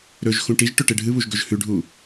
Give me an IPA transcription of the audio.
ɾɵʒ xũʈiʒʈɵ ʈeɖʱɨβuʒ ɡɵʒhʉɖʱu

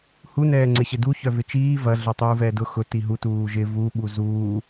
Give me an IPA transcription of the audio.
hunɛːŋ͡ǀɪɕɪ duçœ vɪt͡ʃiː vɐ ɮœtˤuːvɛːdʊ xʊ tiɦu tuːʒɪ vuɓu zuː

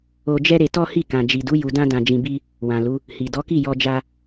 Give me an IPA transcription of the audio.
o˧d͡ʒɛ˦ɾe˧ tɔ˦hi˦˨ kã˨d͡ʒi˨du˨˦ ju˧dã˦ dã˧d͡ʒĩ˧bi˦ | wã˨lu˨˦ | hi˨ dɔ˨˦ki˦˨jɔ˧d͡ʒa˧

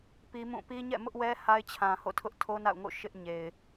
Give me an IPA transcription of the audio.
pi˦mũ˦˨ pi˦ɲɛ̰˦˨ mʊ˦ʔwɛ˦ ha˦ɪ̯t͡ɕʰã˨ ho̰˦˨tʰʊ˦ʔtʰo˦ na̰˦˨ʊ̯ ŋo̰˦˨ ʃɪ˦ʔɲe˨ɪ̯

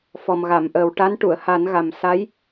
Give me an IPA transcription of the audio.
fɔ˨˩mɣa˨˩˨mʔəː˨˩w ʈa˧˥nʈu˨˩˨ə̯ha˨˩˦n ɣa˨˩msa˧˥j

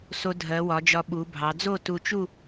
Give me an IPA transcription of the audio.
so˧dʱɜ˩˧wɒ˩˧d͡ʒɒ˧ ɓu˩˧bʱɑ˩˧ d͡zo˥˧tu˧t͡ʃu˥˧

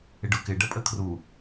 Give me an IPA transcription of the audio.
ɪɖʊkɪ ɖəpʼəkʰru

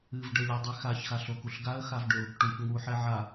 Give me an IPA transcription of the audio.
ɨvɖɘlʲɘdˤe xaçxaɬokuɬ ɡaə̯xavɖʏʊ̯ | ʈuç ŋuħɛ ʕa

